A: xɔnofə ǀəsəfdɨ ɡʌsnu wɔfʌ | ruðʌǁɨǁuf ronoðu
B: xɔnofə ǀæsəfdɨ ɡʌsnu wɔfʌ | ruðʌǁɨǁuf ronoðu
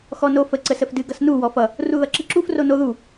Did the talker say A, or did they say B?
A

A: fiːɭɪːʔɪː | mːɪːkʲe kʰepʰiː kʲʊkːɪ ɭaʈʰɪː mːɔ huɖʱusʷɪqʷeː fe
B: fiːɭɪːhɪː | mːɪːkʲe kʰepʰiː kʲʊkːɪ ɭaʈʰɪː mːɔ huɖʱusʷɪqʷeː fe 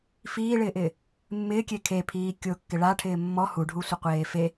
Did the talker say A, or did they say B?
A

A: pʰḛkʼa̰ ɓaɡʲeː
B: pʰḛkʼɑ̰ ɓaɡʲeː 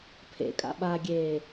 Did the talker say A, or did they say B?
A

